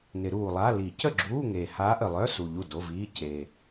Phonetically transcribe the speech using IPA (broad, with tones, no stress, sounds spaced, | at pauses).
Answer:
n ɪ˨˩˦ ɾ uː˨˩ lˠ a˧˥˧ l i˨˩˦ c ə˥˩ ɡ͡ǁ uː˧˥˧ ŋ e˨˩ h aː˧˥ ʔ ə˨˩ lˠ œ˧˥˧ s u˨˩ ʎ u˥˩ d o˧˥˧ v iː˧˥˧ c e˨˩